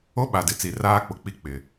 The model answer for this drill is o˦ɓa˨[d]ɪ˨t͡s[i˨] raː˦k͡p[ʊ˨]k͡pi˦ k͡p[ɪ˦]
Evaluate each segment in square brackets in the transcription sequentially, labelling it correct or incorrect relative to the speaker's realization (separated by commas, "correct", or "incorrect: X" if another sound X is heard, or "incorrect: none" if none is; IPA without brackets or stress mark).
correct, correct, correct, correct